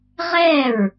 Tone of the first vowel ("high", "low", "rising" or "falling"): falling